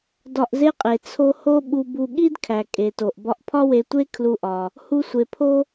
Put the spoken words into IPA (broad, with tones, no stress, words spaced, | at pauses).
dɒ˧ʔze˥qʼe˩ t͡sʰo˧ ho˥ɓu˧bu˧ ɠi˥dkʰæ˩kʼe˩to˩ʔ bɒ˧ʔpʰɒ˥we˧tʷe˥ kʰlu˧ʔɒ˩ | hu˧sʷe˩pʰo˥